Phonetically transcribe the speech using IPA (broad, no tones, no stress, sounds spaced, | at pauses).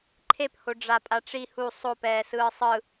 ǃʰ e p h o ɖ͡ʐ a pʼ a ʈ͡ʂ i h u sˤ o p ɛː s ɯː sˤ ɯ